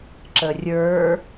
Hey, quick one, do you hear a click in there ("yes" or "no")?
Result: yes